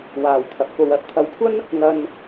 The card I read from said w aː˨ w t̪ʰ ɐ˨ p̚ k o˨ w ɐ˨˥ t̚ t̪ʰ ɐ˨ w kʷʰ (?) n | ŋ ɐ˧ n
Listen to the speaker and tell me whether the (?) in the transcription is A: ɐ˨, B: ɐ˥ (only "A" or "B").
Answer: B